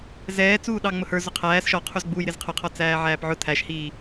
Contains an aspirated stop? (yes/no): yes